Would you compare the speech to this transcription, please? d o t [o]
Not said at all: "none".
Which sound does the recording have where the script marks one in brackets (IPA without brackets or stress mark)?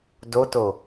o